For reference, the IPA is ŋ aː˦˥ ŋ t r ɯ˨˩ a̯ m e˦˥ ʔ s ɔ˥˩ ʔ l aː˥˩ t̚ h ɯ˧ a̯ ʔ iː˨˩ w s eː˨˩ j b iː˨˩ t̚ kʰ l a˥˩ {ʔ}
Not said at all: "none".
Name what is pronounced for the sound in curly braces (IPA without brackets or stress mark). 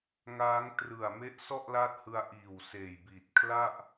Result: ʔ